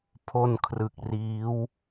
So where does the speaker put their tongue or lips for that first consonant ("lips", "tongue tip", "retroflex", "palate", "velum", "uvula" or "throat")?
lips